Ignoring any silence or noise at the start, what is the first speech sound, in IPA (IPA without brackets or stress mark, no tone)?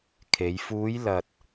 kʰ